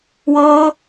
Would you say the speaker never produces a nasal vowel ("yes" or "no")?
yes